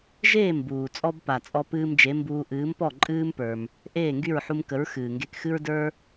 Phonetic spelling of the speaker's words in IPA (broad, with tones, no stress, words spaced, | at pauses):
ʒeː˥˩mbuː˩t͡sʼɔ˧bpa˩ t͡sʼɔ˧pɨː˧md͡ʒe˩˥mbuː˧ ʔɨː˩˥mpɔ˥˩ ǃʼɨː˥mpə˞˩m | ʔeː˥˩ŋɡy˥˩ɹħu˧mkə˩˥ɹ xɨː˩ŋɡe˧kxɨ˥ɹ də˞˥